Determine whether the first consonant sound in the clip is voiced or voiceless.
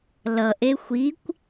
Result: voiced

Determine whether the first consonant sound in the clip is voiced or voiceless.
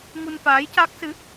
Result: voiced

